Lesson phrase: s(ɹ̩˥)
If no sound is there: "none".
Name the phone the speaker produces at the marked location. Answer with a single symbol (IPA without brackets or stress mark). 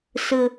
ɹ̩˥